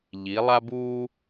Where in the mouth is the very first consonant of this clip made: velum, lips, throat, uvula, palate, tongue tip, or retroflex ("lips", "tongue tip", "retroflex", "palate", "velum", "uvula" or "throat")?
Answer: palate